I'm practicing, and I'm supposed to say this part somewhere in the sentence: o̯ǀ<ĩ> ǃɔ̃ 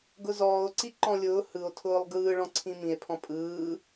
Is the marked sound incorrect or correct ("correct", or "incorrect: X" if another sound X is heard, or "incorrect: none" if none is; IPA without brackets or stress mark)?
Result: incorrect: i